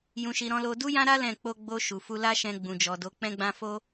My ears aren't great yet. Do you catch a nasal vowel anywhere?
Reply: yes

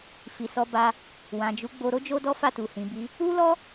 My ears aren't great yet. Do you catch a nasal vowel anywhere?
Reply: yes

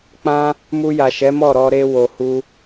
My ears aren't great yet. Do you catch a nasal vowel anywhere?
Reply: yes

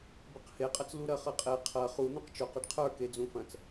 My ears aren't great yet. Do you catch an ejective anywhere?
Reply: yes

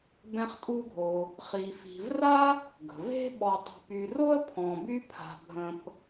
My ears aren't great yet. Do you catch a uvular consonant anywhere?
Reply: yes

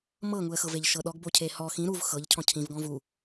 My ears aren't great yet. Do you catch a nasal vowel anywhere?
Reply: yes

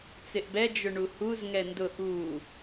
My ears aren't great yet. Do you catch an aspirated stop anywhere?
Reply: no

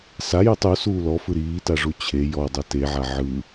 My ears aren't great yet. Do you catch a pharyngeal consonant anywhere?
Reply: yes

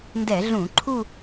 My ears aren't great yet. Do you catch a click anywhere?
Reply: yes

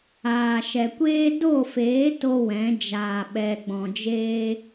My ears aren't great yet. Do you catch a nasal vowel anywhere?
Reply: yes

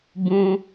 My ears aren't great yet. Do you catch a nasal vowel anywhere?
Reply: yes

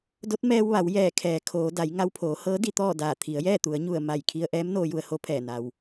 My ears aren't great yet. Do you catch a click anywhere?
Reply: no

